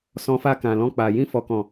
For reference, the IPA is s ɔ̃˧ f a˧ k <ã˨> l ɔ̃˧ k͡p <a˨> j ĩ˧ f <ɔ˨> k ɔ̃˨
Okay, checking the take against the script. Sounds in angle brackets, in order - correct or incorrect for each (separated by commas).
correct, correct, correct